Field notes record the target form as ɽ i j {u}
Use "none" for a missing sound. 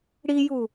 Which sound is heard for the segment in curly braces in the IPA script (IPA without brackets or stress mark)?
u